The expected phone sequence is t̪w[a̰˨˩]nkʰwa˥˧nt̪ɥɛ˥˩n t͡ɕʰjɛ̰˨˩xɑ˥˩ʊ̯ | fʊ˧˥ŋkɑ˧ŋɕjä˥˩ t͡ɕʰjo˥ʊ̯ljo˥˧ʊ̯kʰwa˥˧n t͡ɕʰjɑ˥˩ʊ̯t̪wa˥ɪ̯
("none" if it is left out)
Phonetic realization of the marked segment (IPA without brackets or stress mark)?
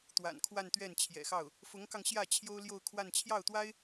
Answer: a̰˨˩